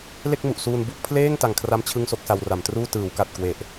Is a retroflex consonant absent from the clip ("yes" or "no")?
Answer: yes